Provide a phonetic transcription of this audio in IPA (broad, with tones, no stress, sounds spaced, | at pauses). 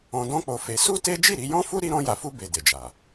ɔ̃˧ d ɔ̃˦ k͡p o˧ f e˧ s u˦ t e˦ d͡ʒ i˦˨ ɾ i˧ j ɔ̃˦ f u˦ ɾ i˦ ɾ ɔ̃˦ j a˧ f u˦ b e˧ d e˨ d͡ʒ a˨